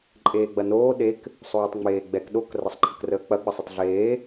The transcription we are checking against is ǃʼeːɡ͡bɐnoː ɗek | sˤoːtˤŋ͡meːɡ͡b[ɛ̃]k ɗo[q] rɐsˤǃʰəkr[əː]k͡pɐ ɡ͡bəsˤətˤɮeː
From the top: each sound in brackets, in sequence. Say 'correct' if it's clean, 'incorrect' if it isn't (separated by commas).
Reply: incorrect, incorrect, correct